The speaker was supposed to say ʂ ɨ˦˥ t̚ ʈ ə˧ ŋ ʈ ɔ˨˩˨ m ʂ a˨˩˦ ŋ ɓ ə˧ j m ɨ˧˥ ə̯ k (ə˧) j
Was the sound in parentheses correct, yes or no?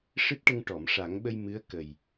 no